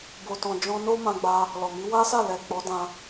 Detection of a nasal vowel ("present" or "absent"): present